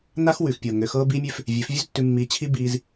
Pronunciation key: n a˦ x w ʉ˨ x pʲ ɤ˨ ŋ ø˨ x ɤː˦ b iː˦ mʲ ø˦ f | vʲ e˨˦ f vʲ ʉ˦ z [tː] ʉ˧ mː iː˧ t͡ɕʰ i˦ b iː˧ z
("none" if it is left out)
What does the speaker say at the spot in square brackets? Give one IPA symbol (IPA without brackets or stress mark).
tː